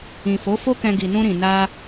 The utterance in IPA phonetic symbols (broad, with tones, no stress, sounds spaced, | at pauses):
ĩ˨ f o˨˦ f o˦ k ɛ̃˧ ɡ i˨ n ũ˧ ɾ ĩ˨ n a˧